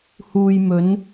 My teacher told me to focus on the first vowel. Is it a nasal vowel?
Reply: no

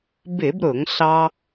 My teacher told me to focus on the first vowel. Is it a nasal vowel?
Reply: no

